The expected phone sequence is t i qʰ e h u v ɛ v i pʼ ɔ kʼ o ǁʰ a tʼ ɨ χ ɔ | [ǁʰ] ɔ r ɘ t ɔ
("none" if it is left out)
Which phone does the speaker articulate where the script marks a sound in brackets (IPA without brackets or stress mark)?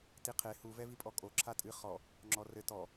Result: ŋ͡ǁ